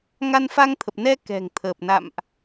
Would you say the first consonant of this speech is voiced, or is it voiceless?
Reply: voiced